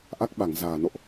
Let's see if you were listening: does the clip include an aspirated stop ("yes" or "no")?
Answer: no